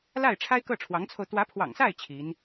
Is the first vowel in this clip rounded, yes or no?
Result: no